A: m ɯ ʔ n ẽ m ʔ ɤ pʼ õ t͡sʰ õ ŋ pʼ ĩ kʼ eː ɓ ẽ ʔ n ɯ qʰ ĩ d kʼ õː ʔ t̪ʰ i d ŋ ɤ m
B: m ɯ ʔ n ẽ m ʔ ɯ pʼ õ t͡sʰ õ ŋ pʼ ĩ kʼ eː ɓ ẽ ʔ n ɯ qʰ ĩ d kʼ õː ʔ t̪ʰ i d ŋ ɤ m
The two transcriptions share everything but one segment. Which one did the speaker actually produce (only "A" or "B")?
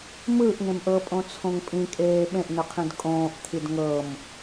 A